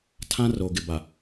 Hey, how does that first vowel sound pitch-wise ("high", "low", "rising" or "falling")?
high